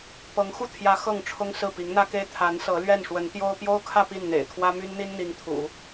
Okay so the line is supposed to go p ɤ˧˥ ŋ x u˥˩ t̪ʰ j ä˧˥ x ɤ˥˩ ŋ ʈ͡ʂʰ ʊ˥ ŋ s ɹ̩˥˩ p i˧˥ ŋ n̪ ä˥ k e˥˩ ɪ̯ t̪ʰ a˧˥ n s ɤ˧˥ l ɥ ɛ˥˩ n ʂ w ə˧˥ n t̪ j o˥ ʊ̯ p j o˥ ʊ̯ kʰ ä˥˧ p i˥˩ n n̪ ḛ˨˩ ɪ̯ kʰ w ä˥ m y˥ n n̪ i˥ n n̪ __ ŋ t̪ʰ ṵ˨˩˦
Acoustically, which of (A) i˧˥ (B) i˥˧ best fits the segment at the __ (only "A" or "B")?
A